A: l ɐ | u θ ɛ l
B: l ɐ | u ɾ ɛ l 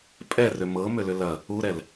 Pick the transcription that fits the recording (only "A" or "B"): B